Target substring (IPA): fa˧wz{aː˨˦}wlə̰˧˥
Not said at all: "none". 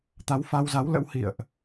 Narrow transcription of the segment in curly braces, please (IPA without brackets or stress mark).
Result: a˨˦